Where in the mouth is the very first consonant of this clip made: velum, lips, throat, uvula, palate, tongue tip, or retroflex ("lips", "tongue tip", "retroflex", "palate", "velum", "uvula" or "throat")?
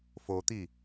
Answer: lips